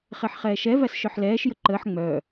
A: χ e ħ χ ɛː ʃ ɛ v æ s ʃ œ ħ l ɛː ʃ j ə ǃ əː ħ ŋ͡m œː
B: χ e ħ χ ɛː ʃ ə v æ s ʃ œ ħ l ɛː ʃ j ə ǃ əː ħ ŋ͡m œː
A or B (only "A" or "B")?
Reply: A